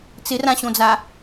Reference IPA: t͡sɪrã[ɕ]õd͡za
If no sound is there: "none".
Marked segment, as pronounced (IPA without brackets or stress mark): ɕ